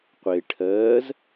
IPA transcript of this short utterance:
qʷe ʈʰɜːz

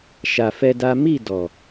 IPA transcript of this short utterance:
ʃa˧fɛ˦da˦ mi˦˨ dɔ˨

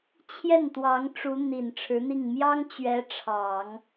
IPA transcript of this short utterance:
t͡ɕʰjɛ˥˩nt̪wɑ˧˥ŋ ʈ͡ʂu˧˥ n̪i˨˩nʈ͡ʂʰɻ̩˧˥n̪i˥˩ŋ mjɑ˥ŋ t͡ɕɥɛ˧˥ ʈ͡ʂʰɑ˨˩˦ŋ

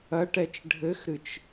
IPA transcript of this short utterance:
ɐʈɛt͡ʃ ɖʱɘxɾɨt͡ʃ

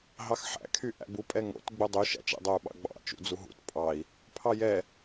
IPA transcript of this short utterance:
ɦɑxħæ̰ kʰyʔæ̰bu pʼɛŋo̰t ɡ͡budˤy ʃæ̰t͡ʃ ɛ̰dˤou̯ɓɑ̰ɡ͡bɑ̰ t͡ʃṵd͡zuɦṵt pʼɑi̯ | pʰɑjɛ

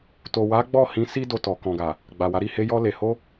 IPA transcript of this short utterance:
to˨wa˨˦ ɡ͡bɔ˦˨hĩ˧ si˦do˧tɔ˨ kɔ̃˨ɡa˨ | ɡ͡ba˨wa˨˦ɾi˦˨ he˧jɔ˧ le˨ho˧

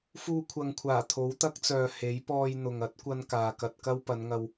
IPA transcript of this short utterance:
fuː˧kʷʰɐ˨ŋkʷʰaː˨˩ t̪ʰo˨˥wt̪ɐ˥k̚t͡sœː˨ he˨˥j pɔː˧jn̪ʊ˨ŋ ɐ˨˥t̚kʷɐ˧n kaː˨kɐ˧t̚kɐ˥w pɐ˨˧nŋɐ˧w

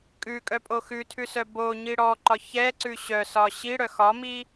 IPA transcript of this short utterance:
kʼʉkʼœpʼo xʉtʰʉsœ boɲi ɽɔǃɒ çɛǀʉ ɕœsɒ ɕiɽœ xɒmi

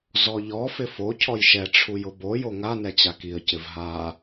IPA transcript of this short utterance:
zɔʎɔ fɪfo cʰɔjʃɛ ʈ͡ʂʰujʊbo joŋa nɛt͡ɕakiə̯ cɪvɦa

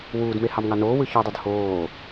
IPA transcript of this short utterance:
wuːdme hɑmŋɑnoː wɯçodˤyd hoː

